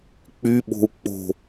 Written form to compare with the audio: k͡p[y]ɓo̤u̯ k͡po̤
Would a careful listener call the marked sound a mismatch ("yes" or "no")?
no